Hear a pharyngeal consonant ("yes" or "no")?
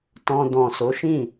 no